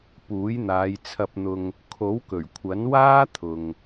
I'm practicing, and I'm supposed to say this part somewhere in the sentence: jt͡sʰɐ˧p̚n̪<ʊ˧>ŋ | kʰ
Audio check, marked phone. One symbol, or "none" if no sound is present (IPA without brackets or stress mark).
ʊ˧